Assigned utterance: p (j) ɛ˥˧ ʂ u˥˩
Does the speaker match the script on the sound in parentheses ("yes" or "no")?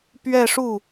no